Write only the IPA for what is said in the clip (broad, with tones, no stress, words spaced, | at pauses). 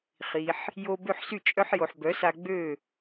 χi˩ħ | jo˧ bø˥˩ħsy˥˩ t͡ʃʼœ˥ħjo˩ħbœ˩˥sa˧ ɡ͡bø˥˩